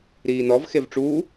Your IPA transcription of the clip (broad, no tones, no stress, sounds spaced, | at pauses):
ɾ iː n ɔ v x e v ʈ͡ʂ uː